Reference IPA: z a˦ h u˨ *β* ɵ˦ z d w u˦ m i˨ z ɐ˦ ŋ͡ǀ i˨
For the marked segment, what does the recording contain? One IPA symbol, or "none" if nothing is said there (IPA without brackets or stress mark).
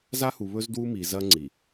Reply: β